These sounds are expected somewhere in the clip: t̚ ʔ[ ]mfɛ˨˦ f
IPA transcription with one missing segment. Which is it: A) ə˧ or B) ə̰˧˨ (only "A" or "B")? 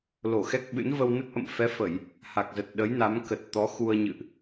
B